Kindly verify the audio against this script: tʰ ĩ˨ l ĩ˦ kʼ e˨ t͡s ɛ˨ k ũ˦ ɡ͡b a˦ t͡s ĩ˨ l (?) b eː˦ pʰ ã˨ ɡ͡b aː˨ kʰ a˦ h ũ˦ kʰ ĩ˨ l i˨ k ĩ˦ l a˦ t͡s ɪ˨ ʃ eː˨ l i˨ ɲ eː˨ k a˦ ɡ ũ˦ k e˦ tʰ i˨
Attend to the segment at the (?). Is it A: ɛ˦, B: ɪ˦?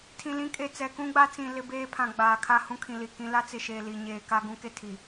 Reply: B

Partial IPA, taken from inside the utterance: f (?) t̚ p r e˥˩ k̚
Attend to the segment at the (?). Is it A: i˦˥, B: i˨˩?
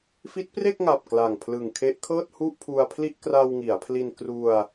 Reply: A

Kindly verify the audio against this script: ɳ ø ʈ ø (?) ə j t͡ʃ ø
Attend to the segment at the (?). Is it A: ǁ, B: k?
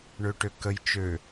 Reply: B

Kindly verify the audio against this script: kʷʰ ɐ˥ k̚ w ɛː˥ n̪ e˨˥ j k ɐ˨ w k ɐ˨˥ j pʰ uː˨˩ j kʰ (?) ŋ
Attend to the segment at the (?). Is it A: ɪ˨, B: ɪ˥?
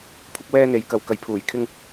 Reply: B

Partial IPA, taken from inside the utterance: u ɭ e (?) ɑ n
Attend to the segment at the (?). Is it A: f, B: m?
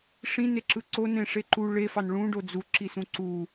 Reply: A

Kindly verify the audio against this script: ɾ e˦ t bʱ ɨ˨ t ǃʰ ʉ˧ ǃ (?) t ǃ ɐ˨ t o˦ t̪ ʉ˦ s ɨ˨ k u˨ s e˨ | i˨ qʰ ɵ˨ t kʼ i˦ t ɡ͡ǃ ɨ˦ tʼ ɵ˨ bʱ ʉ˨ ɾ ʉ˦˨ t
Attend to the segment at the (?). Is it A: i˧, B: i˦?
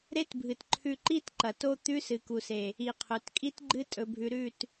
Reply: B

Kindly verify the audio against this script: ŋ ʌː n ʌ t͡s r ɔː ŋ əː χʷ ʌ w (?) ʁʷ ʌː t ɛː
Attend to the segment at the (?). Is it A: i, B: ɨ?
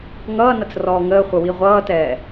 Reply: A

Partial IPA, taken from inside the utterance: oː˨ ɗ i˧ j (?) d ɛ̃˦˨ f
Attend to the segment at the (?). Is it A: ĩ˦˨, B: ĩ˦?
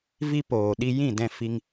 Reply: A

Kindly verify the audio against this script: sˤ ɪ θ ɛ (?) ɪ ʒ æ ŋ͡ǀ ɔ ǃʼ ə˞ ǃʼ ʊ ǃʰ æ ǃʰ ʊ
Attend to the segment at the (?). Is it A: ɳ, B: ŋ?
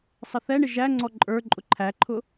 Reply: A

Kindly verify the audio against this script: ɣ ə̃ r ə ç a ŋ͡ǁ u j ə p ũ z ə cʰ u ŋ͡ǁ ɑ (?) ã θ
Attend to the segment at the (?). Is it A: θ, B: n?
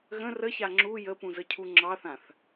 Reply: A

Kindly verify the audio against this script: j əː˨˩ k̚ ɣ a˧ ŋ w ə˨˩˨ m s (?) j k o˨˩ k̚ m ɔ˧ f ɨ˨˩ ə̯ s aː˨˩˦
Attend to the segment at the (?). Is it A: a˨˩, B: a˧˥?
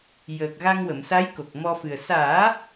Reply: B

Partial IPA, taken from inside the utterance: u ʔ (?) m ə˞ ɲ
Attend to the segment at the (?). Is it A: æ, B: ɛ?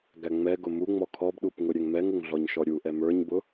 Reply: B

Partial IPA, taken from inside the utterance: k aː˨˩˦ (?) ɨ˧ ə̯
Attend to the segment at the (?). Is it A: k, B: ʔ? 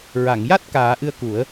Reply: B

